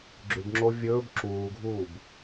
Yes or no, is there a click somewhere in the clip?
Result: yes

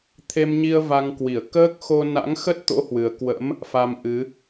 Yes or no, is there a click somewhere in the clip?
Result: no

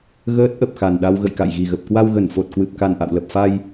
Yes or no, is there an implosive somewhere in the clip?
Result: yes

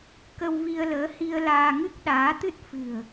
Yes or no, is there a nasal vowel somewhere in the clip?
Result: no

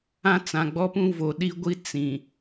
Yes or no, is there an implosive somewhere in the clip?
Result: yes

